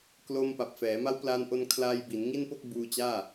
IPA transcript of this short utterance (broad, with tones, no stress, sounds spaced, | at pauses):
k l o˧ m p a˨˩ p̚ f ɛː˩˦ m a˦˥ w p l a˧ n ʔ o˧ n kʰ l aː˧ j b i˩˦ n ŋ i˥˩ n p o˥˩ k̚ b uː˧ t͡ɕ aː˥˩